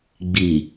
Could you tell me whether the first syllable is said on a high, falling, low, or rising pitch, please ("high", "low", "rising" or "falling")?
low